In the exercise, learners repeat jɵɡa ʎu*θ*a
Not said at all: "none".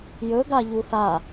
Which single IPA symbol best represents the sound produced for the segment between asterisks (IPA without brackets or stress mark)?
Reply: θ